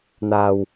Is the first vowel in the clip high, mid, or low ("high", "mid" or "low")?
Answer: low